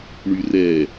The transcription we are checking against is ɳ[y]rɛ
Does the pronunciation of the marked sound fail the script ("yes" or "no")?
no